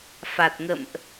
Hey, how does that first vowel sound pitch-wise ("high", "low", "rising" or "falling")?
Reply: low